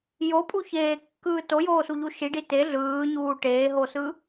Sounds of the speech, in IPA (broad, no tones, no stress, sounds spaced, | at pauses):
j o pʼ u ç eː kː ɯː t o j oː s u ʎ u ʃ i ɖ i t e ɮ ɯː ɲ uː ʈ eː ɦ o s ɯ